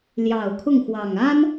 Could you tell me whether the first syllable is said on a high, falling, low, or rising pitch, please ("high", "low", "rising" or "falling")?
low